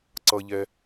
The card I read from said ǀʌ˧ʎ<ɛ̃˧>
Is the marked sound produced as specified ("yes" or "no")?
no